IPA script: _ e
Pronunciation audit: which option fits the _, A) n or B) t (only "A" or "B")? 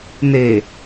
A